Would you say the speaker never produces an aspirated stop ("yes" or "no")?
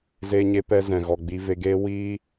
yes